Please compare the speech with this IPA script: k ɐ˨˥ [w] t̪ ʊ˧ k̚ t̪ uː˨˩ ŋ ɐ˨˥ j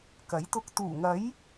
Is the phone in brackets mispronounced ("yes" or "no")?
yes